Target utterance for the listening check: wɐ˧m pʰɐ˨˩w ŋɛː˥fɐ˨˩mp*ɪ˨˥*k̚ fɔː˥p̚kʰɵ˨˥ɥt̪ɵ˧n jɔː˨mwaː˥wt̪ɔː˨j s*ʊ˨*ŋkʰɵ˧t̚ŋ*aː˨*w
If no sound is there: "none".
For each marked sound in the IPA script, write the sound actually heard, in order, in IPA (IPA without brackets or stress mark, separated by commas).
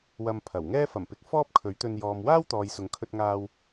ɪ˨˥, ʊ˨, aː˧